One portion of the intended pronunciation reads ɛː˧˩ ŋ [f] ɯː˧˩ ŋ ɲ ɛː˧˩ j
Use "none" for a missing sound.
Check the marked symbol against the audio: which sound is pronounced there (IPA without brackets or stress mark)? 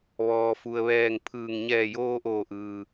pʰ